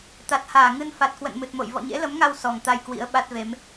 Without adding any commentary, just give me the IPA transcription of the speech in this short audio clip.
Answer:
t̪ a˨˩ t̚ h aː˧˩ ŋ ɨ˧ n f a˨˩ t̚ k w ə̰˧˨ n m ɨ˨˩ t̚ m o̰˧˨ j v ɔ̰˧˨ ɲ ḛ˧˥ l ə˨˦ m ŋ a˧ w s ɔ˨˩ ŋ t̪ a˧ j k w ḭ˧˥ ə̯ ɓ a˦˥ t̚ v e˨˦ m

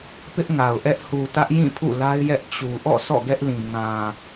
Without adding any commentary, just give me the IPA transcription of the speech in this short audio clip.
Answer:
p ɪ˦ ʔ ŋ a˨ ʊ̯ ʔ ɛ˦ ʔ h u˨ t ä˦ ʔ j ĩ˦˨ pʰ ṵ˦˨ l a˦ ɪ̯ j ɛ˦ ʔ t͡ɕ u˨ ʔ ɔ̰˦˨ sʰ ɔ̰˦˨ ɡ ɛ˦ ʔ l ĩ˨ ŋ ã˨

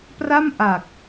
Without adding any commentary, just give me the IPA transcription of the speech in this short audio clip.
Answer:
p r a˥˩ m ʔ a˨˩ k̚

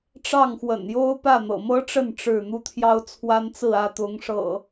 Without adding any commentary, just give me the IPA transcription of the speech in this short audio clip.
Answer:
ʈ͡ʂ ɑ˥˨ ŋ x w ə̰˨˩ n j o˦ ʊ̯ p ä˥˨ n̪ ɤ̰˨˩ m ɤ˦ ʈ͡ʂ ə˥˨ n ʈ͡ʂ ɻ̩˥˨ n̪ u˦ t̪ʰ j ɑ˦ ʊ̯ t͡sʰ w a˦ n t͡s ɹ̩˥˨ ä˥˨ t̪ ʊ˨˦ ŋ ʂ ɤ̰˨˩

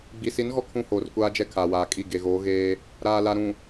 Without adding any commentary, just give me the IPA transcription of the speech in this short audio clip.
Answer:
ɡ͡b i˨ s i˨˦ n ɣ ɔ˦˨ kʰ ũ˦ h oː˨ r kʷ aː˦ d͡ʒ ɛ˦ kʰ aː˨ w aː˨ kʼ i˦˨ ɡ e˨ ɣ oː˨˦ ɣ eː˦ | ɾ aː˨ l a˨ ɾ ũ˨

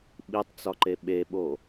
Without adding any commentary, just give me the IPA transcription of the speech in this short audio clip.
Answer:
ɓ i tˤ t͡s ɒ ǃ e ɓ e ɓ o

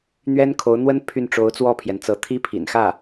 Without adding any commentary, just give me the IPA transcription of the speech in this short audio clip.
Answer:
n̪ ɥ ɛ˥ n kʰ o˧˥ ʊ̯ n̪ w ə˥ n pʰ y˥˩ n ʈ͡ʂ o˧˥ ʊ̯ t͡s w ɔ˥˩ pʰ j ɛ˩ n t͡s ɤ˧˥ t̪ʰ i˥ pʰ ḭ˨˩ n x ä˥˩

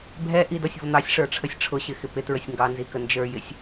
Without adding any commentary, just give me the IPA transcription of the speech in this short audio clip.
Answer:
bʱ ɛ ʔ i d ɔ sʲ v ʊ n̪ ɑ sʲ ʂ ə˞ ʈ͡ʂʰ ə sʲ ʈ͡ʂʰ ʊ ɕ ɪ x ɪ p ɪ t ɹ ə sʲ ŋ ɡ ɑ n z i k ə n d͡ʒ ə˞ j ɪ sʲ

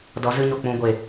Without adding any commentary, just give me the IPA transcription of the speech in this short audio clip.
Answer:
d ɔ˨˦ z ɨ˧ ɲ o˨ k͡p ũ˧ ɡʷ e˨

